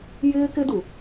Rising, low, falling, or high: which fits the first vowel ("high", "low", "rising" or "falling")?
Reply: high